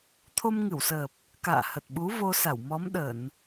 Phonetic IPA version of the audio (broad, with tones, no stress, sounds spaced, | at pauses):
t̪ʰ o˧ m ŋ ɨ˧˩ w s əː˨˩ p̚ | k a̰ː˧˨ h ə˨˩ t̚ ɓ u˨˦ v o˧ s a˧˩ w m ɔ˨˦ m ɗ ə˧˩˨ n